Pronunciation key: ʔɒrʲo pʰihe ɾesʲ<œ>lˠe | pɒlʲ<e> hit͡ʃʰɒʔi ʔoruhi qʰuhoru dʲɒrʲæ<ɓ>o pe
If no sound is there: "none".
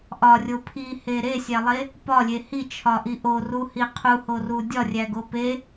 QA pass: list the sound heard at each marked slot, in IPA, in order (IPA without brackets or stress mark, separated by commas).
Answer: æ, e, ɡ